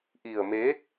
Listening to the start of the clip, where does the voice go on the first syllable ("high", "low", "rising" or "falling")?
low